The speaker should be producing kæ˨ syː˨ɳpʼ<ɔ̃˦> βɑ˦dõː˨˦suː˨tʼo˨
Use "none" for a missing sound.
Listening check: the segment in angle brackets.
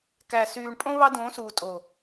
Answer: õ˦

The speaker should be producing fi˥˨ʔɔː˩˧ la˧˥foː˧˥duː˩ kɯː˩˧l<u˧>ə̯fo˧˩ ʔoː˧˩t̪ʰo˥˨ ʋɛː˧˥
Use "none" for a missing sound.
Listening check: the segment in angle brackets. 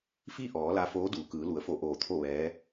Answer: u˩˧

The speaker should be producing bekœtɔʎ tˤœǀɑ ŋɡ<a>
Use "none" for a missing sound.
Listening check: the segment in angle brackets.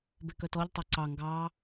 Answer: ɑ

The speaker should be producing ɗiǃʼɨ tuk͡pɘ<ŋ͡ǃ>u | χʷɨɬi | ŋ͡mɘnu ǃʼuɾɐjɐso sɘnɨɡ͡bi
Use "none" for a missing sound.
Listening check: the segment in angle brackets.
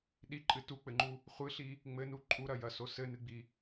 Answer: ŋ͡ǃ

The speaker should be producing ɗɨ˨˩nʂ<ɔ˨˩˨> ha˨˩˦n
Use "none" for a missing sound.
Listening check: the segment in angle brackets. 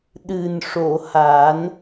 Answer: o˨˩˨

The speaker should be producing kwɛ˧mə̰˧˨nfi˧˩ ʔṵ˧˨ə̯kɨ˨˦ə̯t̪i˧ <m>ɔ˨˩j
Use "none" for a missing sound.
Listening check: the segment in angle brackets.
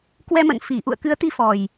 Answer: f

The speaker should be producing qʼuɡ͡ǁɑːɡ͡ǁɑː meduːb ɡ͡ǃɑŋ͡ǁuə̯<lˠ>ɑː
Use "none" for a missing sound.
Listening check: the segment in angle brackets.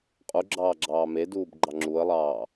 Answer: lˠ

